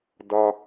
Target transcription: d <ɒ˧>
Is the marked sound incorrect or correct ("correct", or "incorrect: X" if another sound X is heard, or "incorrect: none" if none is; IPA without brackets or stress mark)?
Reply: correct